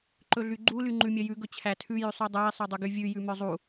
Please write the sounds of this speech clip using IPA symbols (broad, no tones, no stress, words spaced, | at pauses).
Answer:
ǃɵɮyɡ͡ǃu lyŋ͡ǃʉmʲœjʉ ɡɵt͡ɕʰætʰʉ jʉsˤydˤæi̯ sˤœdˤɵɡyvʲʉ jʉmœzˤu